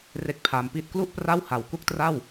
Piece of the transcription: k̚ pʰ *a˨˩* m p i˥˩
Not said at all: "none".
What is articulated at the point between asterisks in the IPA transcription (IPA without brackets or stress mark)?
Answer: a˧